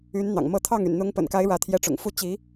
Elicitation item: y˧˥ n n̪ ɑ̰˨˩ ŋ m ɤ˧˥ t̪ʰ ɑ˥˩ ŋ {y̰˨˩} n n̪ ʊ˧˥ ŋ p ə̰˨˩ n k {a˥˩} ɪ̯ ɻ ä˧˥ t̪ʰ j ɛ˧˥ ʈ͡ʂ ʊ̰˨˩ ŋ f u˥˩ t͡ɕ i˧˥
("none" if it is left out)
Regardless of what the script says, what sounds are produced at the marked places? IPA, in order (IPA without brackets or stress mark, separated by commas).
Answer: y̰˨˩, a˧˥